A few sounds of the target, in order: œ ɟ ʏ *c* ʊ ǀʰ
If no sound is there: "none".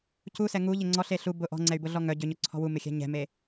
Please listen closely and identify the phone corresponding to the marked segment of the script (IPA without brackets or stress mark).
ɲ